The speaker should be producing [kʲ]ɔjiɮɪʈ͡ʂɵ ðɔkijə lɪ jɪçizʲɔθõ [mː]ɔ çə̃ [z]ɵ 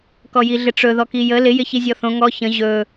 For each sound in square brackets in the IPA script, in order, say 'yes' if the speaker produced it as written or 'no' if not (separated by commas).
no, no, no